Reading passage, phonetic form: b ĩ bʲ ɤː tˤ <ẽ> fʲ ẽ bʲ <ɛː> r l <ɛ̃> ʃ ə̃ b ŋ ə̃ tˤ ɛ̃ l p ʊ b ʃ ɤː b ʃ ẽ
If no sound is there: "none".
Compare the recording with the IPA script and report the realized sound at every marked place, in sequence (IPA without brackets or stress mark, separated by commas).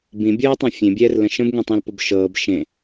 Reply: ɛ̃, ɛː, ə̃